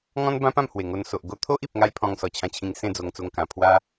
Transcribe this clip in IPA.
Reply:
ŋ ɔ̃˦ n b ã˦ p ã˥˧ m h w e˨˩ ŋ o˧ n s o˨ ʔ ɡ o˧ t̪ʰ o˦ ʔ i˨ p̚ ŋ a˦ j pʰ ɔ̃˧ ŋ s ɔ˨˩ t͡ɕʰ ã˧ t͡ɕʰ ĩ˧ ŋ s ẽ˥˧ d͡z o˧ ŋ t͡s o˧ ŋ k ã˨˩ pʰ w a˦

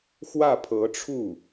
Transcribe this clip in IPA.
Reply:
x w ä˥˩ pʰ ɤ˧˥ ʈ͡ʂʰ u˥˩

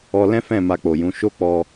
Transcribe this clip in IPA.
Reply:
ɔ˧ l ɛ̃˦ f ɛ̃˦˨ m a˧ k͡p o˨ j ũ˨˦ ʃ o˦ k͡p ɔ˧

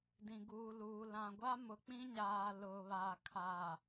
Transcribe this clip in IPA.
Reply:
d ĩ˨ ɡ uː˨ l uː˨ l ã˨ ɡʷ a˦ m ʊ˨ k͡p ĩ˦ ɲ aː˨ l ʊ˨ β a˨ kʰ a˨

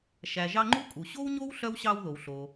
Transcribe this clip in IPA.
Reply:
ʃ æ˩ ʒ ɑ˦ ŋ͡ǃ u˦ kʼ u˩ ɕ o˥ w ɲ o˥ w ɬ œ˥ w ɕ ɑ˦ w ð o˩ w ɬ o˩

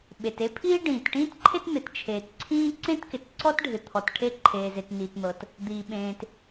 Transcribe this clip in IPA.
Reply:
ɓ e˩ t e˥ pʰ iː˥ ɖ ĩː˩ t ʈ ĩː˥ t ǃʰ e˥ t n̪ ɪ˩ t t͡ʃʰ eː˩ t ǀʰ ĩː˥ ǀ ẽ˥ t k ɪ˩ t ǀ ɔ˥ t ɖʱ ɪ˩ t̪ʰ ɔ˩ t ʈʰ e˥ ǃʰ eː˩ z e˩ t n iː˩ t n̪ ɤ˩ t | d̪ iː˩ ɓ ẽː˩ t

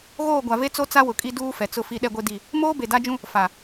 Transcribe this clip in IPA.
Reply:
ɣ oː˦˨ ɡʷ a˨ v e˦ t͡s o˦ t͡s a˦ w ʊ˨ kʼ i˦ d uː˦ f ɛ˨ t͡s ʊ˦ f i˦ ɗ ɛ˦ ɡʷ e˦ d i˦˨ | m oː˦ b e˨ d a˦ d͡ʒ ũ˦ | f a˨

